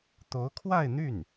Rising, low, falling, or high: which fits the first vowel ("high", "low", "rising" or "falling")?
rising